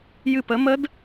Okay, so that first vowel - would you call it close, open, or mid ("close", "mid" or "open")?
close